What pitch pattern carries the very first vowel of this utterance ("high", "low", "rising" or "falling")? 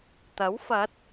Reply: rising